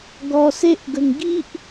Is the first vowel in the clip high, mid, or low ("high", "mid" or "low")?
mid